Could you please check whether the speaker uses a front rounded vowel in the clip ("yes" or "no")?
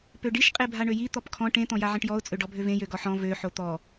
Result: yes